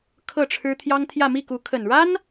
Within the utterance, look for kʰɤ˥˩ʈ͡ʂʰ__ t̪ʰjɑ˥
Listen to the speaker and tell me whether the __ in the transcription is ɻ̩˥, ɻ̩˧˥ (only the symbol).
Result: ɻ̩˥